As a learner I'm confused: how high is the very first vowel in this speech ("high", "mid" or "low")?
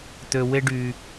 mid